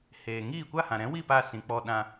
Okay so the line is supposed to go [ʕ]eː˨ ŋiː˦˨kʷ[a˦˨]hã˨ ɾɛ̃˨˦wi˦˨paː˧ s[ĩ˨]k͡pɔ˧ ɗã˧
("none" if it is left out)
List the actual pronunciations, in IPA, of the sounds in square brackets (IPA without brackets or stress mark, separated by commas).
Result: h, a˦˨, ĩ˨